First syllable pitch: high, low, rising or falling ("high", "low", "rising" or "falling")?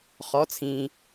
rising